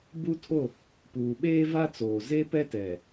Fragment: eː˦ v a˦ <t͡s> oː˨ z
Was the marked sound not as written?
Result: no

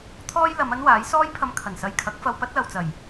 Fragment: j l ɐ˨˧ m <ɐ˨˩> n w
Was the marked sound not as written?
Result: yes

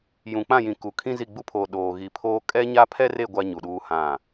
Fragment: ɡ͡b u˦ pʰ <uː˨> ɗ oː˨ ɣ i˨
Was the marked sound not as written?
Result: yes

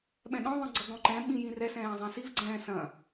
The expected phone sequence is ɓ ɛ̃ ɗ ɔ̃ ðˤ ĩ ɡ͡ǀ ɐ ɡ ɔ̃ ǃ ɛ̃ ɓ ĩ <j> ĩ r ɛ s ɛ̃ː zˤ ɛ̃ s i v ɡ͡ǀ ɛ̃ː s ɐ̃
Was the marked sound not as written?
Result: no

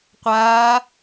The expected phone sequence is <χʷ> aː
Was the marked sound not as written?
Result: yes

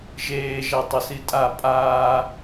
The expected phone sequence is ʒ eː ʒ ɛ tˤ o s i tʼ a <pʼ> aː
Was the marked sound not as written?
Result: no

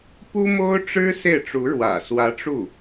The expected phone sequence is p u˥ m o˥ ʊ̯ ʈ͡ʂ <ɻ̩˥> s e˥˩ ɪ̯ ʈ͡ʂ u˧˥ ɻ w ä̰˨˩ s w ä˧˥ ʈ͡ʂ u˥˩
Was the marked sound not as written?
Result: no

